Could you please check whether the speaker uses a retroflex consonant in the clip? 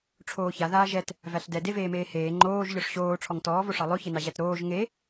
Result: yes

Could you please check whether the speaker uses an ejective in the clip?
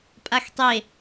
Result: yes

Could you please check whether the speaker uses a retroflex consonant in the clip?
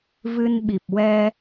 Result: no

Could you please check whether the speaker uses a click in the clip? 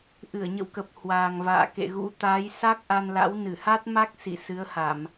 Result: no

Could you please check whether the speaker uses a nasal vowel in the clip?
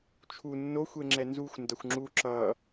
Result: no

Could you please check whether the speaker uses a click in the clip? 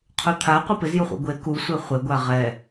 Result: no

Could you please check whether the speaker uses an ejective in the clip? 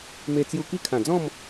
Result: no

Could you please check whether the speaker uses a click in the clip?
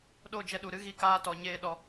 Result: no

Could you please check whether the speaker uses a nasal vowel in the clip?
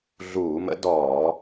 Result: no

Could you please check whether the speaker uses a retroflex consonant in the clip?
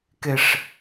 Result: yes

